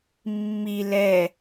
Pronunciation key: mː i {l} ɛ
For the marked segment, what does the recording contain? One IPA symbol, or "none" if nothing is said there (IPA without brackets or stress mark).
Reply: l